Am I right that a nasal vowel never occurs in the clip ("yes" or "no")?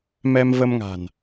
yes